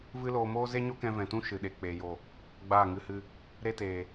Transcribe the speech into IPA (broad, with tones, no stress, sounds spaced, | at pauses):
v ɨ˦ l oː˧ m oː˦ z e˦ ɲ o˦ k ɛ̃˧ v ɛ̃˨ t ũ˦ ʃ ɨ˨ ɗ e˨ k͡p eː˨ j o˨ | ɡ͡b aː˦˨ ŋ ɨ˧ h ɨ˧ | ɾ e˦ t eː˨